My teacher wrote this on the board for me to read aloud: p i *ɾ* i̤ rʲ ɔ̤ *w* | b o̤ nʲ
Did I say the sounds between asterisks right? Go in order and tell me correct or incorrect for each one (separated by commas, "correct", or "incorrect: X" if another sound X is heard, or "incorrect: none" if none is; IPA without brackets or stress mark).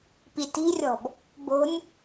incorrect: t, incorrect: b